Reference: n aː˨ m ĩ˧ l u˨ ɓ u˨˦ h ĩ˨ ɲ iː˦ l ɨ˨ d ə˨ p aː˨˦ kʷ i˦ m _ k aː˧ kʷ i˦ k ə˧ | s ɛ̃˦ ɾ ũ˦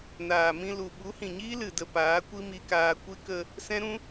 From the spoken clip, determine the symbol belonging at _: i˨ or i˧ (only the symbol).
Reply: i˧